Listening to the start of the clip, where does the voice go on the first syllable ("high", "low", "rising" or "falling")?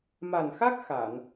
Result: low